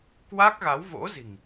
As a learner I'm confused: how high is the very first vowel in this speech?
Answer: low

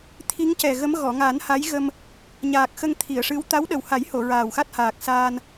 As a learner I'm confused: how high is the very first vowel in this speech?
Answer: high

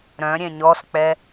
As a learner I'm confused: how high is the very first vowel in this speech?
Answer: mid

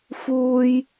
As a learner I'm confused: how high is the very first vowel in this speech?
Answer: high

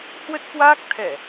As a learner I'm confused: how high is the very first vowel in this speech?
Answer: mid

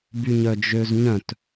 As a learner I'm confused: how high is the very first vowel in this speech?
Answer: high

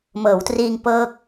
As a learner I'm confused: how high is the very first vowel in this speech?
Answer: mid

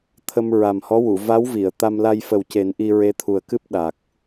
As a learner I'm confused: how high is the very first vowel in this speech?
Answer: mid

